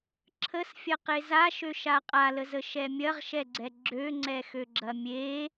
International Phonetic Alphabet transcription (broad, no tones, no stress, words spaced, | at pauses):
ǁʰəsfʲɐ qezaʃø ʃaqʼaləzə ʃɛmʲɐʁʃɛɡ͡ǀɛ ɡ͡ǁøŋ͡ǀɛxøɡ͡ǁɐ mʲe